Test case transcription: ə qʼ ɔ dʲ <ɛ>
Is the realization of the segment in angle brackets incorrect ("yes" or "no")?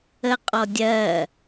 yes